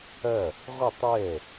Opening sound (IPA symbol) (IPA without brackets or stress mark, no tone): ɐ